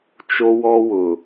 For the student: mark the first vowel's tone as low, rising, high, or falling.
high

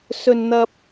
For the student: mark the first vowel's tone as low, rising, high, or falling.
high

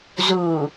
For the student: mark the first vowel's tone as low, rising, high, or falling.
low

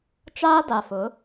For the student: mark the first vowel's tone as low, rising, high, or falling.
high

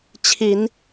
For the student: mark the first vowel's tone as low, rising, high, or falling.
rising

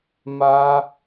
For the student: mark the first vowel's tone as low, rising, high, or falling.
high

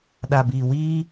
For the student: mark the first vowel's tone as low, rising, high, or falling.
low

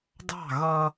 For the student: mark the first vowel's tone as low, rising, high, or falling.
falling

